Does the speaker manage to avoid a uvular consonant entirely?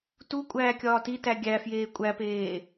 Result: yes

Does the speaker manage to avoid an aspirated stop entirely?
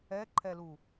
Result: no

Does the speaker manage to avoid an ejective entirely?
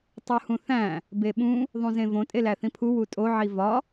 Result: no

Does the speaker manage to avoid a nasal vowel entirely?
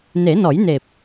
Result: yes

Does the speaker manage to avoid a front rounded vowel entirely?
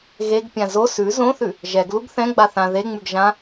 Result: yes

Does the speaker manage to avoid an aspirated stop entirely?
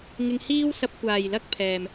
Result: no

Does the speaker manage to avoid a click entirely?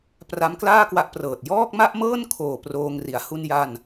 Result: yes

